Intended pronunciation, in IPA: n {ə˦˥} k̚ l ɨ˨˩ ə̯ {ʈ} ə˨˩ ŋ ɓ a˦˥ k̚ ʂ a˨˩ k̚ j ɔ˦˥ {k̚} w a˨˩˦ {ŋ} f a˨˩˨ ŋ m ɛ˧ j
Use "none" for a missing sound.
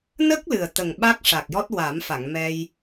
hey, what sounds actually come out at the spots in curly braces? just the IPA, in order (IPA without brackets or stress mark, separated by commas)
ə˦˥, t̪, t̚, m